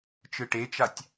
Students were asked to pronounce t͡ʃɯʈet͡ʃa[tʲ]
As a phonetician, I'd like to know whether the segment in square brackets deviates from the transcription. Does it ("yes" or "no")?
no